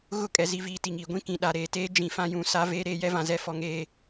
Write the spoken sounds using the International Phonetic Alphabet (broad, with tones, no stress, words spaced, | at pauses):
ɣʊ˦˨kʼɛ˨zi˨viː˨ ti˨ŋiː˨ ɡʷĩ˦ kĩ˨ ɗa˨ɾeː˨teː˦ d͡ʒĩ˨fã˦jũ˨˦ sa˦ veː˦ɾeː˦ jɛ˦vã˨zɛ˦ fɔ˨ŋeː˨